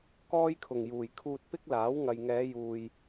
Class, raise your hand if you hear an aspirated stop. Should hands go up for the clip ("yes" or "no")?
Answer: yes